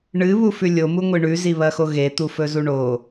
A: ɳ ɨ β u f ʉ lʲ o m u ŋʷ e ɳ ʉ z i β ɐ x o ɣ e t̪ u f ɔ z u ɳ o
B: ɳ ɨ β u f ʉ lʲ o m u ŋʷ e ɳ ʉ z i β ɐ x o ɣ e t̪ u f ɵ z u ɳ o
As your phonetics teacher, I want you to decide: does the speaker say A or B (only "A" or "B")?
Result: B